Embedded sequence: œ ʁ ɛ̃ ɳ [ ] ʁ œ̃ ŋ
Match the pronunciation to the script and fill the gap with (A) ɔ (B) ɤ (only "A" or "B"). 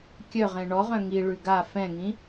A